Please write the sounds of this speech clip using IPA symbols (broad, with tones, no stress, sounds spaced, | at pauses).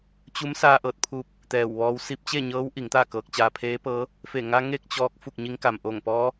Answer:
t͡ɕ u˧˥ m s aː˧ ʔ ɤː˧˩ t̚ pʰ uː˧ p̚ | t̪ ɛː˧˩ w ʋ ɔː˧˥ w s i˧ p̚ t͡ɕ e˥˨ ɲ ɤː˧˥ w ʔ i˩˧ ŋ t̪ aː˥˨ k ɤː˧ k̚ t͡ɕ aː˧ pʰ eː˧˥ p ɤː˧˥ | f e˧˩ ŋ a˧ ŋ e˥˨ k̚ t͡ɕ ɔː˧ k̚ f u˥˨ k̚ ɲ i˧˥ ŋ k a˩ m ʔ o˧˩ ŋ p ɔː˧˥